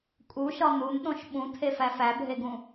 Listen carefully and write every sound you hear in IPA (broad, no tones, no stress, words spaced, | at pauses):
kʼuʃɒ n̪unɗõʃ ɓũtʰefæ fæbʱeɡũ